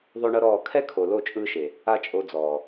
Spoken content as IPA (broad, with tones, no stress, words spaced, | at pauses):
ðˤo˦ɳɤ˦ɾɔː˦˨ kʰɛ˦kʰo˨ lo˦˨t͡ʃʼɯː˧ʃe˨ | a˦t͡ʃʼo˧d͡zɔː˨